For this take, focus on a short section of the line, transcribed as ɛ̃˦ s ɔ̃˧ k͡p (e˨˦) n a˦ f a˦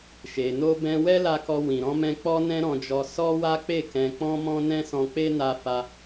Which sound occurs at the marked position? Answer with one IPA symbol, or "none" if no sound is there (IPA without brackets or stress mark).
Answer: e˦